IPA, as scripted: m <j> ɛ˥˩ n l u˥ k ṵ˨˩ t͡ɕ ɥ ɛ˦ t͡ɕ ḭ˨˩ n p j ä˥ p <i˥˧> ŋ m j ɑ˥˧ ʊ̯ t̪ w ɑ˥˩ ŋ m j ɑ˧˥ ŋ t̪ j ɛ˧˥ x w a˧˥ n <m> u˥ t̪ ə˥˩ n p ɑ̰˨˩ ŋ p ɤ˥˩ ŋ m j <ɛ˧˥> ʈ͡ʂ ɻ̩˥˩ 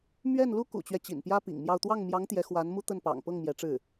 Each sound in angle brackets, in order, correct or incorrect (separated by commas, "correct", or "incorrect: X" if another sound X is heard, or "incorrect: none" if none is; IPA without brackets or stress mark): incorrect: ɥ, incorrect: ḭ˨˩, correct, correct